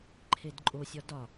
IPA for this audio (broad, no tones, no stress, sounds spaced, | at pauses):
ǃʰ e d ǃʼ o sʲ ɒ d ɒ